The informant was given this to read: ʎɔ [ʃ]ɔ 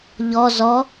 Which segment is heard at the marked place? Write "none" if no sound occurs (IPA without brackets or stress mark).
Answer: z